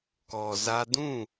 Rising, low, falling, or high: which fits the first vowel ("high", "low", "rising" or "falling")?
low